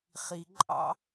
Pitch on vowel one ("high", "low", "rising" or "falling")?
low